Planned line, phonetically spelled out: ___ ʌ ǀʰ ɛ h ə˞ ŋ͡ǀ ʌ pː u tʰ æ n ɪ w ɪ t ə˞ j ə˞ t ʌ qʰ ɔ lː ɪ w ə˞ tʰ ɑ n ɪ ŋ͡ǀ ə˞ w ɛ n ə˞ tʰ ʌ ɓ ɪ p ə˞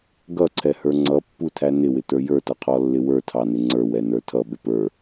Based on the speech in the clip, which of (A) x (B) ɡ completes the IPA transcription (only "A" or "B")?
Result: B